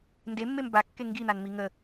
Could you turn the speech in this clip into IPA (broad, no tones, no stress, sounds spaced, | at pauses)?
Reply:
n d e mː e m b a kː e ŋ ɡ i n̪ a n m i ŋ ə